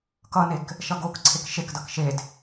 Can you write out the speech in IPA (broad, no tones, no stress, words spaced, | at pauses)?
kʌnek | ʃʌɡokǀʰek ʃekdʌk ʃed